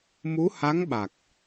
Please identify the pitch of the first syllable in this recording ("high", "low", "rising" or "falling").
rising